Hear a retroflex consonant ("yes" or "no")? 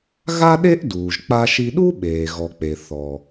no